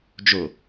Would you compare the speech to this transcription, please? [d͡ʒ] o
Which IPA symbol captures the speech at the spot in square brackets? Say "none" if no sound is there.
d͡ʒ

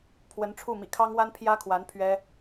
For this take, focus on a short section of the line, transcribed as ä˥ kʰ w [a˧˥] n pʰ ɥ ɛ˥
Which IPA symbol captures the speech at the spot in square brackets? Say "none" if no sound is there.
a˧˥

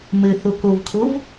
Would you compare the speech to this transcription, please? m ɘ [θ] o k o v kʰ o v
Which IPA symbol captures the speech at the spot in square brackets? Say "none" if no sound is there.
θ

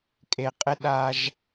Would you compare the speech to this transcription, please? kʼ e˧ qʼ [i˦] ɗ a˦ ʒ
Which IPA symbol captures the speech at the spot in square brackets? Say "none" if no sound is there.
ɪ˦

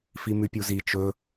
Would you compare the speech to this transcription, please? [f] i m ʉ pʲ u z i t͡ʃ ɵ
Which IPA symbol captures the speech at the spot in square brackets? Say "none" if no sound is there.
f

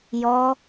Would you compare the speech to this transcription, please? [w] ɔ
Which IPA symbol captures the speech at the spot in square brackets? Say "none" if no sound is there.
j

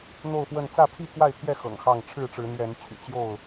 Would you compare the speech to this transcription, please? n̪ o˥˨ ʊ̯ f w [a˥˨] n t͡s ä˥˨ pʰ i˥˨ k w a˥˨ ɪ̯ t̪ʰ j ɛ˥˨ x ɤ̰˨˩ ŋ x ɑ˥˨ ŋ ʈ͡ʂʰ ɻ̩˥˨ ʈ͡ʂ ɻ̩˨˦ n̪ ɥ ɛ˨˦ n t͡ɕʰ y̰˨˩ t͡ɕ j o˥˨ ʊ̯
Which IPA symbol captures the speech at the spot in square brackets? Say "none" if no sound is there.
ə˥˨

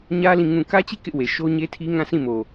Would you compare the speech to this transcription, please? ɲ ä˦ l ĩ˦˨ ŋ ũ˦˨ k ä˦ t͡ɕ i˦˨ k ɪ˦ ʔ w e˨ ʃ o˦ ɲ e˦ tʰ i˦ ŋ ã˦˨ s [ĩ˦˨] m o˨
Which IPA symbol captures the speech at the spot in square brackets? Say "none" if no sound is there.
ĩ˦˨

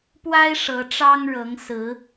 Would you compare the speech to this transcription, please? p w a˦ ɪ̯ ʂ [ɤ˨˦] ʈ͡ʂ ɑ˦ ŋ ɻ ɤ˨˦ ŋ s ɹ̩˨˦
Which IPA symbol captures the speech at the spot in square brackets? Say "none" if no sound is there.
ɤ˨˦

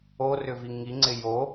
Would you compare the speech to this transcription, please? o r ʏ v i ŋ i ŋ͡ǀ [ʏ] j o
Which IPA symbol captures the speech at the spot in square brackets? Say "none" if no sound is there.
ɪ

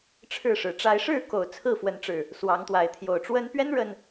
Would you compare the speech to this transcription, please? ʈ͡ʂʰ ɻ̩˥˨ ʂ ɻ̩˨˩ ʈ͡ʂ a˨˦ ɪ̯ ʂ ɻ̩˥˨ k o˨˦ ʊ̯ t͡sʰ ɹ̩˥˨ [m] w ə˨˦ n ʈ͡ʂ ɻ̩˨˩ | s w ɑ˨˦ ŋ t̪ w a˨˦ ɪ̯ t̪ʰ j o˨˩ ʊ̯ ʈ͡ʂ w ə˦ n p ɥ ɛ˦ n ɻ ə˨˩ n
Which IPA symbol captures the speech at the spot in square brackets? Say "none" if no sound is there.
f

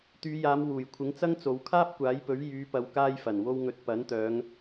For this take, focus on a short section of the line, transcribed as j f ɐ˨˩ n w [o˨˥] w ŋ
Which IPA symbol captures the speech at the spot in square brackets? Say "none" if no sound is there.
o˧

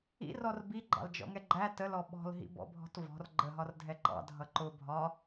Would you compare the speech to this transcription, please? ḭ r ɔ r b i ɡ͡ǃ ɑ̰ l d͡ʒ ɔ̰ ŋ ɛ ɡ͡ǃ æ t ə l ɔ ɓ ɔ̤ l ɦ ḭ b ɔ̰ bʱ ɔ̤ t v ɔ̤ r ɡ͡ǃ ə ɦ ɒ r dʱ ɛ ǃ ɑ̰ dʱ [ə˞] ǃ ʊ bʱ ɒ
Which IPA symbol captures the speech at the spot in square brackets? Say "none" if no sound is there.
ʌ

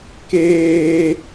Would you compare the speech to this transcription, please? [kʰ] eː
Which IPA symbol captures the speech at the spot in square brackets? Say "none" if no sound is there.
k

